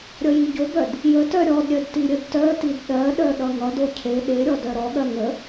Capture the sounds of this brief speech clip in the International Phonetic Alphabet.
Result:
ɾʲʌjiɟobœd | jətœ ɾʲɔdɾʲœd tiɾʲədtœtid ɗɜɗœ ɗʌŋʌdo cʰe ɗeɾʲɔ dœɾɔɠɜ ŋə

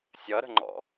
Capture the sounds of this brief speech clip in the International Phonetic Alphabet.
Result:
sʲʌɾə̤ŋ͡ǃɔ̰

